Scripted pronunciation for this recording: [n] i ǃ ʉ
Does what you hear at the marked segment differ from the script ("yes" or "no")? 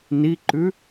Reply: no